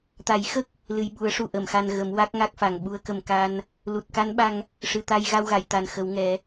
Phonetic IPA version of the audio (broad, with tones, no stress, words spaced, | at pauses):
t̪a˨˩˦jxə˦˥k̚ | lɨ˨˩jɓu˨˩˦ə̯ʂu˨˩ ʔə˨˩˨mxa˧n ɣə˨˩˦mwa˦˥k̚ŋa˦˥k̚fa˨˩ŋ ɓu˧˥ə̯kə˨˩mka˧n | lu˨˩t̚ka˧˥nɓa˧ŋ | ʂɨ˨˩t̪a˧j ɣa˧wɣa˨˩˨j t̪a˨˩nxə˨˩˦wŋɛ˨˩˦